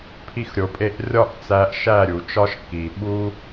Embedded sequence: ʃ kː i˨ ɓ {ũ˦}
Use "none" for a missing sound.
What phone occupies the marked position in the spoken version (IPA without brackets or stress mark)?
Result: u˦